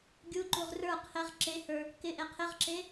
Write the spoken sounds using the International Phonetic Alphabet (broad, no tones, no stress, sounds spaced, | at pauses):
ɡʲ u ǃ u ʁ r ə˞ qʰ ɪ ʁ ǁ e h ə˞ | k ɪ ʔ e qʰ ɪ ʁ ǁ e